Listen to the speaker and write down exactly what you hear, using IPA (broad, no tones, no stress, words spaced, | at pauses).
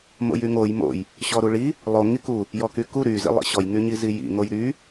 mo̰jyŋoj mo̰j | ɕɔɾuɭi | lˠo ŋiku | jɔkyku ɾy zḭlˠḭɕɔj ŋyɲizijḭ ŋojɾy